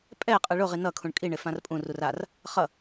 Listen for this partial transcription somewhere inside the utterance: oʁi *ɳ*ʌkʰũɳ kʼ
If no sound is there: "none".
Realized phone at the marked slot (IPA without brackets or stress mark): n